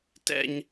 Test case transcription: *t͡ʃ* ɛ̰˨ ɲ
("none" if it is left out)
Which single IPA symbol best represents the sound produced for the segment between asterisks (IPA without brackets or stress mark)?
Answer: t